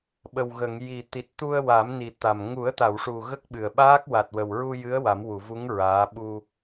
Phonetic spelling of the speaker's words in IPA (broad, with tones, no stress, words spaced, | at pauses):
ɓə˨˩wɣə˨˩˨ŋji˨˩ t̪i˨˩t̚t̪u˧ə̯wa˨˩˦m ni˨˩t̪a˨˩m ŋu˨˩˦ə̯t̪a˨˩˨wʂu˨˩ ɣə˦˥k̚ɓɨ˨˩ə̯ɓaː˦˥k̚ wa˨˩t̚wə˨˩wɹu˧jɨ˧˥ə̯ wa˨˩˦mwu˨˩˨vu˧˥ŋ ɹaː˧˥ ɓu˧